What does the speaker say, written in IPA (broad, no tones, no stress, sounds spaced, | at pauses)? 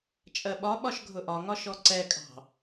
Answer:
t͡ʃʼ ɜ ɓ ɒ ɓ ɒ ʃ ɡʱ ʊ ʔ ɒ ŋ ɒ ʃ ɔ ǀ ɛ kʼ ɑ̤